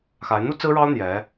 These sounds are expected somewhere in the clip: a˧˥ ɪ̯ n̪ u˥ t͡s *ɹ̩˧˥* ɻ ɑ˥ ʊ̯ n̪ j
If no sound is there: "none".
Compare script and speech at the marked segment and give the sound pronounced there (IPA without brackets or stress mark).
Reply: ɹ̩˥